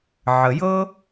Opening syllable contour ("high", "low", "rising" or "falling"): low